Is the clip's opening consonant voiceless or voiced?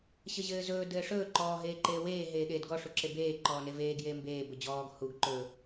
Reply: voiceless